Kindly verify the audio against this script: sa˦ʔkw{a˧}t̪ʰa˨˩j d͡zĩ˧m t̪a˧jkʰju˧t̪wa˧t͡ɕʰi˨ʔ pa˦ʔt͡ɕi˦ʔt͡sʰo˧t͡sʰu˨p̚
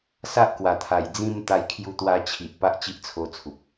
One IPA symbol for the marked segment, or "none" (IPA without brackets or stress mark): a˨˩